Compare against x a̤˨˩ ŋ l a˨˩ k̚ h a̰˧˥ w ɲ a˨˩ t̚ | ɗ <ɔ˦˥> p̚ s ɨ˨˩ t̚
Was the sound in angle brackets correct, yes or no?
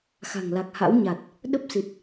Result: no